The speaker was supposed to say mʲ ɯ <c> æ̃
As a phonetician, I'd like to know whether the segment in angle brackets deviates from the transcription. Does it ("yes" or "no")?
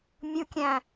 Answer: yes